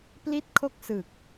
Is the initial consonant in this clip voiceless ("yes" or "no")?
yes